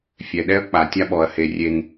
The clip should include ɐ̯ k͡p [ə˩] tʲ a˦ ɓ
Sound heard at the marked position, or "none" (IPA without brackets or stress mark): a˩